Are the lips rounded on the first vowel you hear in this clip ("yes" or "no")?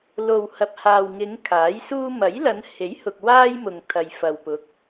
yes